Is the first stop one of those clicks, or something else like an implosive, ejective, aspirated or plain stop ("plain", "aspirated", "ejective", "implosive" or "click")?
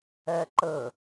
click